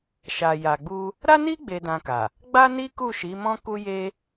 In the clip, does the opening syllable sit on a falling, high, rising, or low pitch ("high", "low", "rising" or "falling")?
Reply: low